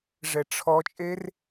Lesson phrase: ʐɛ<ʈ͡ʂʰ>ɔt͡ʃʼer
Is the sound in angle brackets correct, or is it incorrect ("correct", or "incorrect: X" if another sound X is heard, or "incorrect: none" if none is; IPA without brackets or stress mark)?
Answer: correct